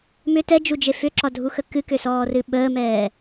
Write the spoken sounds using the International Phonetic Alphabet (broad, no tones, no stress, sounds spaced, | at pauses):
m ʏ t ɛ d͡ʒ u d͡ʒ e f ʏ ǁ ɒ dʱ u x ə k ɨ k ʏ s ɔː r ɨ ɓ əː m ɛː